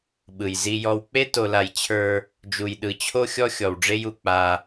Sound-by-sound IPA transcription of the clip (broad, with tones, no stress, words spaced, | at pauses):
ɓɯ˨jzi˦jɔ˦w k͡pe˦to˨la˨j t͡ɕʰə˞˦ | d͡ʒu˨jɗɯ˨t͡ɕʰo˦ xʲɔ˦xʲɔ˨wɖ͡ʐe˦ju˨ k͡pa˦